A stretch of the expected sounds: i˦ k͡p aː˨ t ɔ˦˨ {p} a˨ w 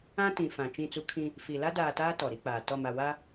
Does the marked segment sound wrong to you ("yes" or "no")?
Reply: yes